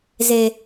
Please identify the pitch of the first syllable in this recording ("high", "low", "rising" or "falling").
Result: low